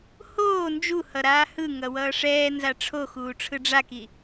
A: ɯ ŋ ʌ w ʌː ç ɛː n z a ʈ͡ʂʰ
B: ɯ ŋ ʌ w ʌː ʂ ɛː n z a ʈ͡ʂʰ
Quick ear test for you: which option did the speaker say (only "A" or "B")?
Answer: B